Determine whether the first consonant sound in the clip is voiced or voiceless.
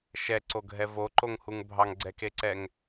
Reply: voiceless